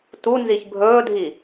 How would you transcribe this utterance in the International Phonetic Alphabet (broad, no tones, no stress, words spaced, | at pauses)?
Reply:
tu nziçbʱɵːdʱi